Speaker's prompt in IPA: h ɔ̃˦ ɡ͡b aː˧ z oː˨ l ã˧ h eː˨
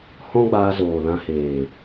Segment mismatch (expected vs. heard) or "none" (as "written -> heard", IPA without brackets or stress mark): none